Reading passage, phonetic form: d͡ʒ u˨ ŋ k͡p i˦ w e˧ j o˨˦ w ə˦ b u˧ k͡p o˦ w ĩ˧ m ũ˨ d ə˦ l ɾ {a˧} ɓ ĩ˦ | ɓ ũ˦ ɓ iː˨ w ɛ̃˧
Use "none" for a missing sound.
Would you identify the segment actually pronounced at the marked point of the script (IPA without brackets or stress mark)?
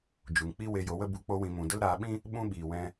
aː˧